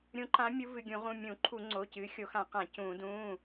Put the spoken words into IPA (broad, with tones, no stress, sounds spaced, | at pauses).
ɾʲ ũ˨˦ ǃ ã˨˦ mʲ u˨˦ v ɨ˩˧˩ ɡʲ ũ˧˩˧ ʁ ũ˩˧˩ mʲ ũ˧˩˧ ǃʰ u˧˩˧ ŋ͡ǀ o˩˧˩ c ɨː˨˦ xʲ o˧˩˧ x ã˧˩˧ q ã˧˩˧ c ũː˧˩˧ d ũː˩˧˩